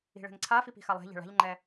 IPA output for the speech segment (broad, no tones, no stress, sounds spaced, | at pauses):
i̤ ɭ ɛ̤ ŋ ǀʰ a f i p i̤ x a lˠ ɛ̤ ʎ ɛ̤ ɭ a̤ ʎ ŋ͡ǃ ɛ